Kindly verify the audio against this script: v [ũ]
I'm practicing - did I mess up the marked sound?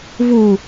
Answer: yes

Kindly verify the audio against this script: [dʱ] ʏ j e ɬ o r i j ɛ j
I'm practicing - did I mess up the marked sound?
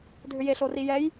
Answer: no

